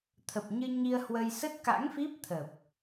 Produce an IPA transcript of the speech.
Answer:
t̪ʰ ə˨˩ p̚ ɲ ɨ˧ ɲ i˧ ə̯ h w ə˧ j s ə˦˥ t̚ k a̰˧˥ ŋ f i˦˥ p̚ t̪ʰ ə˨˩ p̚

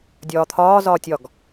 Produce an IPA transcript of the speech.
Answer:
dʲ ɒː t̪ʰ ɒː z ɒː tʲ ɒ ɡ

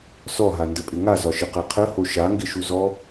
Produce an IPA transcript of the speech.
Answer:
s ɔ ɦ a n d ə pʼ ɪ ŋ a z ɒ ʃ ɪ q ɛ qʰ ə h o ʃ a ŋ ɡ ɪ ʃ u z ɔ

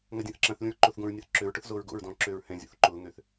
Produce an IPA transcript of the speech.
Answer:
ŋ ɐ dʲ ɛ̃ θ ǁ ɐ̃ θ lʲ õ ɹ ǃ ʊ θ ɡ õ ɹ nʲ ɛ θ ǁ ø ɹ ʈ ʊ θ z oː ɹ ɡ o̰ ɹ d ɔ̃ː ǁ øː ɹ h ɛ̃ zʲ o̰ θ ǃ ʊː ŋ ø θ

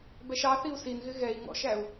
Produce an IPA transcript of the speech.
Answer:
b ɛ ʃ ɑ θ i u̯ s i n ɣ ɪ ɣ ɛ i̯ ŋ ɔ̰ ʃ æ u̯

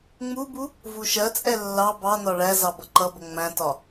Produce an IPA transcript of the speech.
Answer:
ŋ͡m u b u | v u ʃ ɜ t͡sʼ ɛ lː ɑ b ɑ n ɒ ɭ æ z ɑ b ʌ ǃ ʌ b ə ŋ͡m æ̃ t ɒ

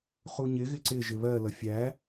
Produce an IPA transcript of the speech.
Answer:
χ u ɲ ɪ ɣ ɪ ǀ ɪ ʒ ɪ β ɜ l ʌ fʲ æ

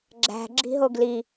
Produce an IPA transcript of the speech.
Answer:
ɡ͡ǁ æ̤ ɡ͡ǁ i̤ ɦ o ɡ l i

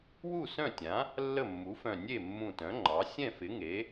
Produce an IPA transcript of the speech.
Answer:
w u˥˩ s œ̃˥˩ tʲ ã˩˥ | lː ə˥˩ mː u˩˥ f œ̃˧˩ nʲ e˥˩ mː ũ˧˩ t œ̃˩˥ ŋ͡ǃ ɑ˩˥ sʲ ɛ̃˥˩ f ɪ˩˥ ŋ e˩˥

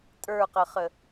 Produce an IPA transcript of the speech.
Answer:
tʼ ə˞ q ə χ ə

